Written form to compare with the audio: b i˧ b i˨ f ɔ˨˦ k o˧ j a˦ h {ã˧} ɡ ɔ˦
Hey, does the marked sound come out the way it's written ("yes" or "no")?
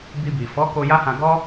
yes